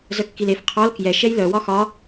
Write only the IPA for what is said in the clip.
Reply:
zœkːilef qʰɔl kjɛ ʃɛjlœ wɒxɒ

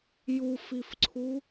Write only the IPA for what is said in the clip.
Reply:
jufifǀʰu

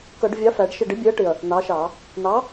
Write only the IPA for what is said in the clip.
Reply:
kʌ˧˩˧ɖvʲɑ˨˥ fæ˨˥ɖʃɪ˥˨ ɖɪ˨˥bʲɛ˨˥ɐ̯ʈɪ˨˩ɐ̯ | n̪ɑ˨˥ʃɑ˧˩˧ | n̪ɑ˨˥

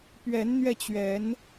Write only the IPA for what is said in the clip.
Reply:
pɥɛ˨˦nn̪ɥɛ˧t͡ɕɥɛ˨˦n

